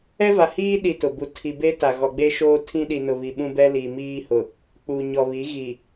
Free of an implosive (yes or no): no